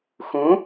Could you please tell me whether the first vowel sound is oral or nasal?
nasal